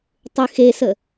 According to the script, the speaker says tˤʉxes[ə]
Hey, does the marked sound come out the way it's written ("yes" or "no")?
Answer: yes